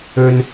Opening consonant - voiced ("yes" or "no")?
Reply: yes